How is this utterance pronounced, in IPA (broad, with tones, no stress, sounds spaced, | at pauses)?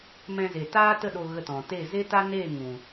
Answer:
m ɛ̃˧ z e˨ t aː˦ t ə˦˨ ɗ o˧ ɣ ə˧ t ɔ̃˨ t e˦˨ z e˦ t a˦ n e˦˨ ŋ ũ˨